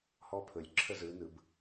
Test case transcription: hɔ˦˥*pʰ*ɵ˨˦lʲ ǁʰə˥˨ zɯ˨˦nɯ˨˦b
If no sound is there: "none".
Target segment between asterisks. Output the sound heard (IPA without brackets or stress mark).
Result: pʰ